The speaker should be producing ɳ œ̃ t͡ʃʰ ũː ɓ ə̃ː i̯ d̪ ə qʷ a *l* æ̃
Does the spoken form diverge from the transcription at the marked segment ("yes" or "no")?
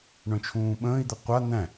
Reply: yes